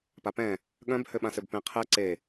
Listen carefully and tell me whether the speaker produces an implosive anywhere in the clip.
yes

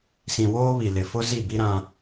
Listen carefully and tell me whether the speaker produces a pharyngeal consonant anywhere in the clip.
no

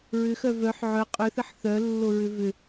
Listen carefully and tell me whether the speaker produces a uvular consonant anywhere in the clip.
yes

